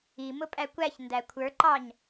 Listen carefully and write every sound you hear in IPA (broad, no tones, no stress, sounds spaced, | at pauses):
i m ʊ pʼ æ kʷ æ ç n d æ kʷʰ ə˞ ǃ ɑ ɲ